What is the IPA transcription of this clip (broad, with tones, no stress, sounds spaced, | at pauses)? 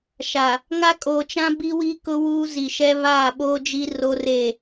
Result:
ʃ a˨ | ŋ a˦ kʼ oː˨ t͡ʃ ã˦ b i˦ w i˦ k ʊ˦ w uː˦ z i˨ ʃ ɛ˦ β aː˦˨ ɓ oː˦ d͡ʒ i˦ r oː˦ r eː˦˨